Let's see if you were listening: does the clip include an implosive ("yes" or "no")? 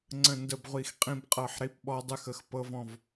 yes